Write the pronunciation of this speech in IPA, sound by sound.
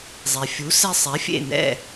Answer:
zˤe˩fʲu˩˥sɛ˧sˤɛ˩˥ fʲḛ˥˩nɛ̰˥˩

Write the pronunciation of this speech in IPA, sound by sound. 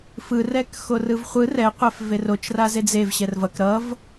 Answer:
fɯrɛk xorɯvχʷɯ rɛqʷɛf verot͡ʃ razed͡zev ɕɛrvʌk ɾʌv

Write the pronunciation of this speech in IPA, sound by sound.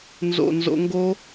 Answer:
nzo̰˨˩nzo̰˧ŋɡo˦˥

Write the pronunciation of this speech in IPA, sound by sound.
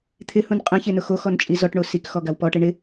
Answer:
t̪ʰɪhũn qʼɛ̃çenʊ xoxɔnt͡ʃʼi zɔʈɳo sikxɔɡaw pɔʈe ɳɪ

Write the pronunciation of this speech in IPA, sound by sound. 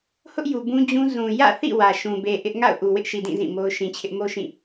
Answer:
hʊ˦ʔju˨ bũ˦d͡ʑũ˦ zũ˨jä̰˦˨θḭ˦˨ wä˨ʃũ˨be˨ʔɪ˦ʔ ŋa̰˦˨ʊ̯ ʔu˨wɪ˦ʔʃi˨dĩ˦˨ zĩ˦˨mo˦ʊ̯ ʃĩ˨t͡ɕʰɪ˦ʔ mo˦ʃĩ˦˨

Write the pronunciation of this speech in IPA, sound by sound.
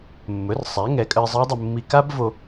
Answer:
mːɵ˩˥rsˤæ˩˥ ŋɛ˩˥kʼə˧ɪ̯zˤə˦˥ɪ̯dˤə˧ mːi˧ ka˦˥bvo˧

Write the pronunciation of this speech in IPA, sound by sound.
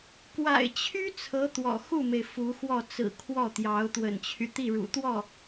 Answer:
kwa̰˨˩ɪ̯t͡ɕʰy˥ t͡sʰɤ˧˥ t̪wɔ̰˨˩ xu˥˩me˩ɪ̯ fu˧˥xwɔ˥˩ t͡sɹ̩˨˩ kʰwɔ˥˩t̪jɑ˧˥ʊ̯ t̪wə̰˨˩nt͡ɕʰy˦ t̪i˥˩ɻṵ˨˩t̪wɔ˥˩

